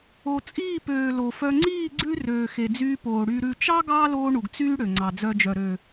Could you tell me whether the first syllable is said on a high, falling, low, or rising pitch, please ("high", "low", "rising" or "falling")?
low